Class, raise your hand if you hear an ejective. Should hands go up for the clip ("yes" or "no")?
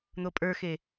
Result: yes